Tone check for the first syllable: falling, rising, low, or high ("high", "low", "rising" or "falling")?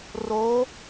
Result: rising